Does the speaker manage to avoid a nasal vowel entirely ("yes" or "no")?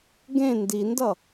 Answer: no